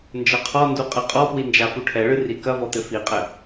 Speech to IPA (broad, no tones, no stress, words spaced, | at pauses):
nd͡ʒɐqʰɔndu qʼɘqʼɔpwi nd͡ʒafuʈʰɛɭɨ rikɐvɔ t̪ɘfiqʼɘ